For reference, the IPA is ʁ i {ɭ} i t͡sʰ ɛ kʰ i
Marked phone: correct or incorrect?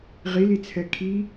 incorrect